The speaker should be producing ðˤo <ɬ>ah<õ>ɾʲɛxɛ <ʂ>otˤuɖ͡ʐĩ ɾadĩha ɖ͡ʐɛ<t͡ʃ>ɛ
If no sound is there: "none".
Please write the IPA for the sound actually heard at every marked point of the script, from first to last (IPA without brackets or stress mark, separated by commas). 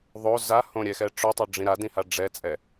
z, õ, ʈ͡ʂ, t͡sʼ